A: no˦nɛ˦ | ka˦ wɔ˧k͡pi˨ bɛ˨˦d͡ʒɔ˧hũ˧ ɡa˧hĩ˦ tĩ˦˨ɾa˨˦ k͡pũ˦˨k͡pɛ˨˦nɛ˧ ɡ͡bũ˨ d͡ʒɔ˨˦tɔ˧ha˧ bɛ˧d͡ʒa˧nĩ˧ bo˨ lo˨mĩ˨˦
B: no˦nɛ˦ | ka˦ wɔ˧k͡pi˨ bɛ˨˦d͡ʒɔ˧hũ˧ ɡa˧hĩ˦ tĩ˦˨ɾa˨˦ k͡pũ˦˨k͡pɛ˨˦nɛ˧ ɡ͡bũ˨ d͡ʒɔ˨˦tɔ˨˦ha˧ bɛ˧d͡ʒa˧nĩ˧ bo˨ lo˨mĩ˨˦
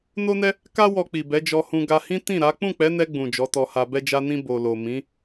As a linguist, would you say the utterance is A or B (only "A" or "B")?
A